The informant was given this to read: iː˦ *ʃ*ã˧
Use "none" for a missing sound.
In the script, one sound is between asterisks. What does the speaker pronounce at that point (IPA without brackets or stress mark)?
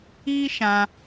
ʃ